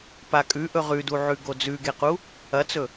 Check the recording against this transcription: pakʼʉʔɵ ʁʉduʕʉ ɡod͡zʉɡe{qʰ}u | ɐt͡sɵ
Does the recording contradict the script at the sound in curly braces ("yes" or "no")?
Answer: yes